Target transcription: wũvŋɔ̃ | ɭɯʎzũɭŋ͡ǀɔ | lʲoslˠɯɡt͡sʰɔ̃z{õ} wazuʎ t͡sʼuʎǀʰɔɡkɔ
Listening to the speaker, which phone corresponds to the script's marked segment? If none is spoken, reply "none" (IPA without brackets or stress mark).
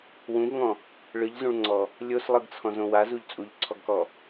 õ